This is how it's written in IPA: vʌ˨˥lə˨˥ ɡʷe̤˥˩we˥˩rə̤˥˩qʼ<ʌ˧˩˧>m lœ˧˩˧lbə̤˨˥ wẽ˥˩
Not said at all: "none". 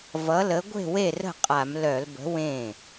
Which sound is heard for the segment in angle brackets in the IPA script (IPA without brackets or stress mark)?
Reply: a˧˩˧